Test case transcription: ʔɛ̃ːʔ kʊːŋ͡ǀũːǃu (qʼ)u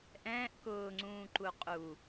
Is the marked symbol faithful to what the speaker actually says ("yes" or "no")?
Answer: yes